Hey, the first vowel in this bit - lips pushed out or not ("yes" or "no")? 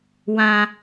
no